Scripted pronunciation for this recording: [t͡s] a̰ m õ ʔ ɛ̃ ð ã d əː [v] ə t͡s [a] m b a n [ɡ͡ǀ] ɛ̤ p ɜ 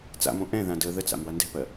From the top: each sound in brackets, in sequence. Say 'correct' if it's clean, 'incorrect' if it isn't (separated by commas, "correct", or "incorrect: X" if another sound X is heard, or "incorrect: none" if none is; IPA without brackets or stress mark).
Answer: correct, incorrect: ð, incorrect: a̰, incorrect: d